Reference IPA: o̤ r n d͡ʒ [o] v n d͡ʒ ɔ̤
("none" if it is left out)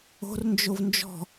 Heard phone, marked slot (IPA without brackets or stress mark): o